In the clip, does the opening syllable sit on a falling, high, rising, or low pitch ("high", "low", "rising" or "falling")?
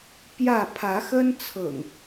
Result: falling